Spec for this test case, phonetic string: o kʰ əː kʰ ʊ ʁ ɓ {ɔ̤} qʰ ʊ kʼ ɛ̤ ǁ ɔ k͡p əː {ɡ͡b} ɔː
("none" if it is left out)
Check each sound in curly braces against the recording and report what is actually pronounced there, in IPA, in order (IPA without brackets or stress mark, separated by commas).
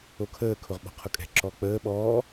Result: ɔ̤, ɓ